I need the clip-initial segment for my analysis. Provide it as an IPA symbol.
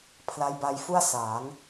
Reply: pʰ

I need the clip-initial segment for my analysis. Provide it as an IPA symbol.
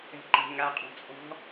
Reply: ɛ̤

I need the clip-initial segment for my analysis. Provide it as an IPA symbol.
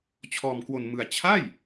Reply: t͡ɕʰ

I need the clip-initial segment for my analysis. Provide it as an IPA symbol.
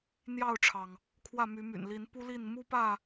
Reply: n̪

